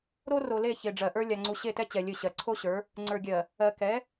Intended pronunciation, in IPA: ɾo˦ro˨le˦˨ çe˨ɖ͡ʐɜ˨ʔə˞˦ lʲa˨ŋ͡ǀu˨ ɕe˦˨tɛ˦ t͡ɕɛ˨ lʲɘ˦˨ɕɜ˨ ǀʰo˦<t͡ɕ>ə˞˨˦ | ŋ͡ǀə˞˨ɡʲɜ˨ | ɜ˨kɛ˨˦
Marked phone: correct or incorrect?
incorrect